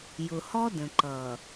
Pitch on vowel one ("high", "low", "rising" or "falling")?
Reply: low